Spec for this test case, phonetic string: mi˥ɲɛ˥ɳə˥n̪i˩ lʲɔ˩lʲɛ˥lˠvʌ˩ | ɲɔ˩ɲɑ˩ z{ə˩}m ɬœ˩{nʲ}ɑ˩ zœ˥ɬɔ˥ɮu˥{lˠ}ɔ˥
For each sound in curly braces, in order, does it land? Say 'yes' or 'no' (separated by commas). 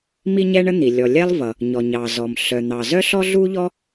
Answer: no, no, no